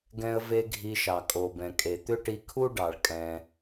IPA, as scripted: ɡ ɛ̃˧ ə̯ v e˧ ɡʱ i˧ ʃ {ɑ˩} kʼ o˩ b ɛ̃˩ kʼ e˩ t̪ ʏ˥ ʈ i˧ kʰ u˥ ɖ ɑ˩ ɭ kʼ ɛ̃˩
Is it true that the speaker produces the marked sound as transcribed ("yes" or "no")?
yes